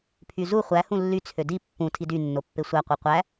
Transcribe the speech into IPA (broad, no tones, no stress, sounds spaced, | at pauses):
pʰ y z u χʷ æ h ũ lː y t͡sʰ ø d i pː ũ tʰ i d y nː o pː e sʷ æ qʷ ɯ qʷ æ